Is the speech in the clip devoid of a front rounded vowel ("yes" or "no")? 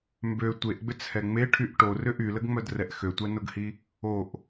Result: no